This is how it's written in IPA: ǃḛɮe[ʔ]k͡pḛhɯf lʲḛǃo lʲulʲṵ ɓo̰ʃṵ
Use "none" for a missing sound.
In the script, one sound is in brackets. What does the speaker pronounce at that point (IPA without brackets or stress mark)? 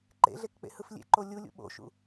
k